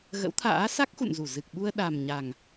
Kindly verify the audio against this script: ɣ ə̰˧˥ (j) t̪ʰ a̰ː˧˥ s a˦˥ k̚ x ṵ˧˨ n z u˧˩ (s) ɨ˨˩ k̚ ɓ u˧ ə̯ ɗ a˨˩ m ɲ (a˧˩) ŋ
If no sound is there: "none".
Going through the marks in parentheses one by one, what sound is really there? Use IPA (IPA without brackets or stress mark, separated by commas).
w, z, a˨˩